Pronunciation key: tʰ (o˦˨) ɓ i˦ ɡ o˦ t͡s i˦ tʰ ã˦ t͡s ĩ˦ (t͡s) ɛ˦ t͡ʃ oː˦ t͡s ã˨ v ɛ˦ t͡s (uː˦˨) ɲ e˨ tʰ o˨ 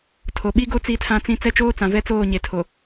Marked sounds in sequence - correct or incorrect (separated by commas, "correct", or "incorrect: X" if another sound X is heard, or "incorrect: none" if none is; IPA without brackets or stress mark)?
incorrect: o˨, correct, incorrect: oː˦˨